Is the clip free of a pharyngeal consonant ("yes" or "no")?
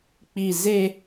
yes